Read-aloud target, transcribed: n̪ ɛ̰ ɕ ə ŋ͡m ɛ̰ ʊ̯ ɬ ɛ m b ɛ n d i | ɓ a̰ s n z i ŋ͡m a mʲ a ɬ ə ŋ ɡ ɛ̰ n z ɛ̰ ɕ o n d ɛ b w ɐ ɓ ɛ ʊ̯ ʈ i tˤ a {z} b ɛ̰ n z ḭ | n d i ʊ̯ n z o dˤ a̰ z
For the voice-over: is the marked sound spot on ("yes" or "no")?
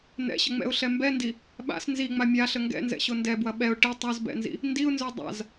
yes